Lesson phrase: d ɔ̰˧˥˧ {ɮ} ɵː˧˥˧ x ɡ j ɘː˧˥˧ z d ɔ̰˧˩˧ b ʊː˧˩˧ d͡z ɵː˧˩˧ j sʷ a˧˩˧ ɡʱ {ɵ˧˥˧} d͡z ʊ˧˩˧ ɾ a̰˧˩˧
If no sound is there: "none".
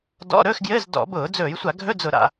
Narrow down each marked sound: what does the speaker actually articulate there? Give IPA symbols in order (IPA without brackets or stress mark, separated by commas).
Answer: ɾ, ɵ˧˥˧